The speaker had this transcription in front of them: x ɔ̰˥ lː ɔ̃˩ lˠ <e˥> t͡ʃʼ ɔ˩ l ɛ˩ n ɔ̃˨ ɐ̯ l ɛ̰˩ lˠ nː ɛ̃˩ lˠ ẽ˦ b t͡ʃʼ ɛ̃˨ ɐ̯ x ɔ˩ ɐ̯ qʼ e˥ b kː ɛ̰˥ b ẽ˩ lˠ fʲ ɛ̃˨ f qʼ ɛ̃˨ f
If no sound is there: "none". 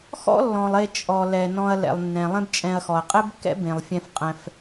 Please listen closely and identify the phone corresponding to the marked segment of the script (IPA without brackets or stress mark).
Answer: e˨